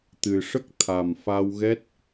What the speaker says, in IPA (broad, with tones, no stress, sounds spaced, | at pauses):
t̪ ɨ˨˩ ʂ ə˦˥ k̚ t̪ʰ a˨˩ m f a˧ w ɣ ɛ˦˥ t̚